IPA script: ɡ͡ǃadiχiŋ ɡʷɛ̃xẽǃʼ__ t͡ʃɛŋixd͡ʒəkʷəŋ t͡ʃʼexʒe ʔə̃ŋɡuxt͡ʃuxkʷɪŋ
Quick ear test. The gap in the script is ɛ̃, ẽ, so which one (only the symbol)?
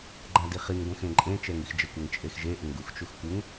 ẽ